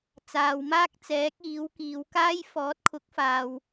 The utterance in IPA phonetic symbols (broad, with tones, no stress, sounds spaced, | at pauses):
t͡s aː˨ w m aː˥ k̚ t͡s ɛː˨˥ k̚ iː˨˥ w k iː˨˧ w k aː˥ j f ɔː˨˥ t̚ kʰ ʊ˨˥ k̚ f aː˨ w